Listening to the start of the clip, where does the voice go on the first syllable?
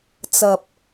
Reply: low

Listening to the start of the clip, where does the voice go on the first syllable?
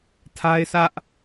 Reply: high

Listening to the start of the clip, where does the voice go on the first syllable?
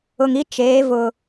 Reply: low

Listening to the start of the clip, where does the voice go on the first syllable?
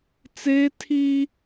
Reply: high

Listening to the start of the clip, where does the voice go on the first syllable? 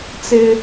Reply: high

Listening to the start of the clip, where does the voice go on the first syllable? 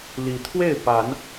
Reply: rising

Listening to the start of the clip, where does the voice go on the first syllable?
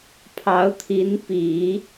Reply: rising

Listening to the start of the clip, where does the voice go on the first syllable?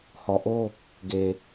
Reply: low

